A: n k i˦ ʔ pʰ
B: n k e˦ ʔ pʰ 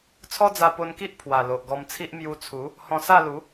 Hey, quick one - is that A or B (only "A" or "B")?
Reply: A